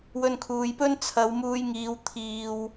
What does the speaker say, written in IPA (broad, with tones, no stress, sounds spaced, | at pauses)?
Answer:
w ɵ˧ n kʰ uː˨ j p ɵ˥ n t͡sʰ ɐ˨˧ w m uː˧ j ŋ iː˨˧ w t̪ʰ iː˨ w